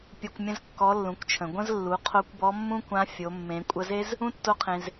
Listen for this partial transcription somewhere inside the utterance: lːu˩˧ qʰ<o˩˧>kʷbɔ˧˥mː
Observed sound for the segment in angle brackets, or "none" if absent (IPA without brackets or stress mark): o˧˥